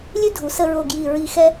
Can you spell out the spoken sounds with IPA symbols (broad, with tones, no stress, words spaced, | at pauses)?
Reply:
lʲʉ˥dʱu˩˧ sə˧ɹo˧˩ ɡji˧˩ ɹi˧xɛ˥